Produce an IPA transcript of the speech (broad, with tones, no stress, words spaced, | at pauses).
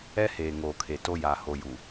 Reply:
ɛ˦heː˨ ŋoː˨kʰe˨to˦ ja˨ho˨ ju˨